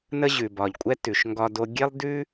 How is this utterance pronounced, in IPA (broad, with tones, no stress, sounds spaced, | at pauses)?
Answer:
n ə˦ ʑ ʉ˨ b ɒ˨ ʎ kʷʼ ɛ˥ t ʉ˨ ʃ ŋ ɡ ɒ˦ d o˦ ɡʲ e˥ lˠ d ʉ˥